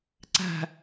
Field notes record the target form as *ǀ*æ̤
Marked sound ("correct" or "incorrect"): correct